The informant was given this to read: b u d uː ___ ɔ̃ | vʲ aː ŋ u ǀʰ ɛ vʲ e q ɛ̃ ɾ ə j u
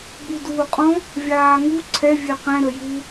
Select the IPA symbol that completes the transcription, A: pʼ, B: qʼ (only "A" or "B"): B